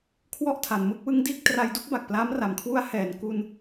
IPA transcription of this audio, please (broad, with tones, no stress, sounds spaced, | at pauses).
kʰ w ɔ˦˥ ʔ tʰ a˩˦ n m ɯ˥˩ k̚ w ɯ˦˥ ŋ d iː˥˩ k̚ t r a˧ j d u˥˩ k̚ b a˨˩ k̚ p l aː˦˥ m r a˩˦ m kʰ w u˦˥ a̯ h ɛː˩˦ n k u˧ n